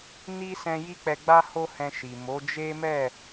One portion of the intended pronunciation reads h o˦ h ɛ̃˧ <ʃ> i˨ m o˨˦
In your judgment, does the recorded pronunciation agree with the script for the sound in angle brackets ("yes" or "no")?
yes